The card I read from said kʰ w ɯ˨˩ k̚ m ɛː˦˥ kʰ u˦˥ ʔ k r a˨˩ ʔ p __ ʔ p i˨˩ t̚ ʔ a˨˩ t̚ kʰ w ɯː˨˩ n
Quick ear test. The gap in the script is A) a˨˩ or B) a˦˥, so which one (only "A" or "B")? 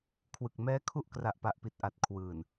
A